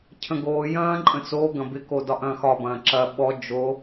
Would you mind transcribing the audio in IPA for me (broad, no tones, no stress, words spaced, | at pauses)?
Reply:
cʰə̃ɡoː jɐ̃ː ǃʼə̃t͡so ɡɐ̃bɪko dɒʔɐ̃ːxɒ bɐ̃ːǁɐ ɓɔ d͡ʒo